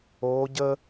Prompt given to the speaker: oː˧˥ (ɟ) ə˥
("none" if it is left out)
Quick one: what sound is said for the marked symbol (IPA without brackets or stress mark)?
ɟ